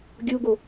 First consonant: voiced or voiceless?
voiced